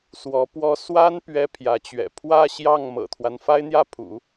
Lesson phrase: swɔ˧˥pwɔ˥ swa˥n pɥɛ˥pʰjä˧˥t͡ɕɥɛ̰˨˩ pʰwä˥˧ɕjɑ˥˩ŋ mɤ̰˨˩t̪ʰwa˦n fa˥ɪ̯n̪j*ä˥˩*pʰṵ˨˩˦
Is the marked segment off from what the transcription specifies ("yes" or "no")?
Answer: no